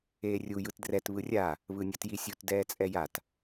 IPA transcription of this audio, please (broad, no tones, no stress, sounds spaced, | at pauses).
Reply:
eː rʲ u j ɯ t d r ɛ t β ɯ rʲ a | β ɯ nʲ ʌ t j i sʲ u t d ɛː t͡sʼ ɛ j a t